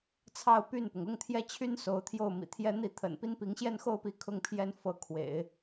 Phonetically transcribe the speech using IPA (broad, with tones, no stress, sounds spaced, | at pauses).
t͡sʰ ɑ˥˧ ʊ̯ p y˥˩ n p ʊ˩ ŋ ʊ˥˧ ŋ t̪ʰ j ɛ˥˩ t͡ɕʰ y˥ n s o˧˥ ʊ̯ t̪ʰ j o˥˩ ʊ̯ m ḭ˨˩ t̪ʰ j ɛ˥ n̪ i˥˩ t̪ʰ ə̰˨˩ n p i˥ n p i˧˥ ŋ ɕ j ɛ˥˧ n x o˥˩ ʊ̯ p i˧˥ kʰ ʊ˥˩ ŋ pʰ j ɛ˥ n f ɤ˧˥ kʰ w ḛ˨˩˦ ɪ̯